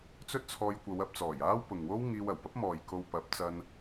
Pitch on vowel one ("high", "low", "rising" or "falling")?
high